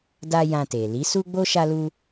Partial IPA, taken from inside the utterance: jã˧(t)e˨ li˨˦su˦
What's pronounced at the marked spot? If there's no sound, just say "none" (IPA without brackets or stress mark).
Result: t